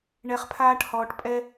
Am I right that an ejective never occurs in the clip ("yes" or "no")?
no